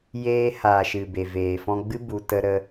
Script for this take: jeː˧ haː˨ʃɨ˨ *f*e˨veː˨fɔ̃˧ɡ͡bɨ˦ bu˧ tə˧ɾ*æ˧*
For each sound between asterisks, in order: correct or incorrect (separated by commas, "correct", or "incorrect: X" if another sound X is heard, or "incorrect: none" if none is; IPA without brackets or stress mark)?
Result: incorrect: b, incorrect: ə˧